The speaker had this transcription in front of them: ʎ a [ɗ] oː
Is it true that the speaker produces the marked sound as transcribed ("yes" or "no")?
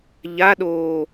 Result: yes